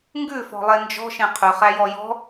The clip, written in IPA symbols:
ŋɡʉfɔ̤lˠe nd͡ʒɔ̤ʃẽ qʰʉχæjɔ jɔ̤

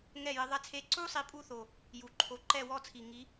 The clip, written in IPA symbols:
ŋɛ˦˨jɪ˨˦ ðˤɛ˦˥t͡sʰe˦˥ ǀu˦˥sˤi˨˦ pʼu˦˥θo˨˩ | ju˨˩ǃʰo˨˦ ǃɛ˦˨wɔ˦˨t͡sʰi˨˩ ŋi˨˦

